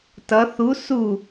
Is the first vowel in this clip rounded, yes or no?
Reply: no